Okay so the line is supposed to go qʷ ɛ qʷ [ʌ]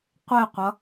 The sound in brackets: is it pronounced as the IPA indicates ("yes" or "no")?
yes